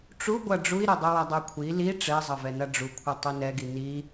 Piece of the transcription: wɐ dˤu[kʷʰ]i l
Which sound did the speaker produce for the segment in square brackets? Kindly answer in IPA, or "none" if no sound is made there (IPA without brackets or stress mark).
kʷʰ